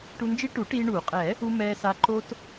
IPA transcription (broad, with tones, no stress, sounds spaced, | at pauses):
ʈ u˧ n d͡ʒ i˦˥ ʈ u˨˩˦ ʈ iː˧ ɳ uː˨˩˦ qʼ ɛː˨˩˦ | u˧ m ɛː˧ s a˧ ǃ o˧ t